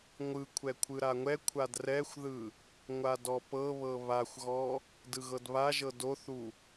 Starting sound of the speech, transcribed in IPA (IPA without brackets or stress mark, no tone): ŋʷ